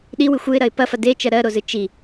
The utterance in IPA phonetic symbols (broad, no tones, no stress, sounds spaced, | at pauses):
ɗ i w ɨ xʷ ɯ ɪ̯ ɾ ɐ ɪ̯ p ɐ f ɐ d e t͡ʃ ɜ ɾ ɜ ɾ o z ɨ t͡ʃ i